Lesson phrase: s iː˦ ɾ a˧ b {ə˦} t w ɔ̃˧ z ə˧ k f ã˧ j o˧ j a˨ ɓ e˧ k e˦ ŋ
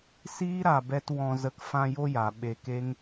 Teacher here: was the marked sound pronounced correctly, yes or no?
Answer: no